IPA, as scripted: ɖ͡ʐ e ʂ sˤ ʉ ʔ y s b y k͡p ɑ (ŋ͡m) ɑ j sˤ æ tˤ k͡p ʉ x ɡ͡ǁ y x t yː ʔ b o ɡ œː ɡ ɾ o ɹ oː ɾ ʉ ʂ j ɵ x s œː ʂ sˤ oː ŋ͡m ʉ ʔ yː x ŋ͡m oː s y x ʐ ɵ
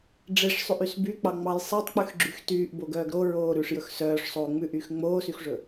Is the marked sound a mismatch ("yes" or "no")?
no